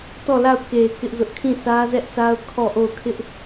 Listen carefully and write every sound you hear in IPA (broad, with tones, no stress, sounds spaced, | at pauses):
t ɔ˦˨ l a˦˨ ʊ̯ k e˨ k ɪ˦ ʔ z ʊ˦ ʔ kʰ ĩ˦˨ s ä˦ z ɛ˦ ʔ s a˦ ʊ̯ kʰ ɔ˦˨ ʔ o˦˨ ʊ̯ kʰ ɪ˦ ʔ